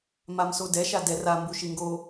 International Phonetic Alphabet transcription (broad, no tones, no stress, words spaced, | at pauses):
mamsodɛ ʃadɛr a mbuʃiŋɡo